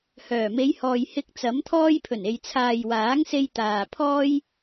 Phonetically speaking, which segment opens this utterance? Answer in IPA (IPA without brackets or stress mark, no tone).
h